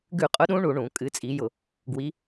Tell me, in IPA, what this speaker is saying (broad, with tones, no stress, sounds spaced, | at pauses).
ɡ ʉ˧˩˧ qʼ ʊ˨˦ ɗ ũ˨˦ ɳ u˧˩˧ ɳ ũ˧˩˧ kʼ ɨ˨˦ t͡sʼ i˨˦ j ʊ˧˩˧ | ɡ w i˨˦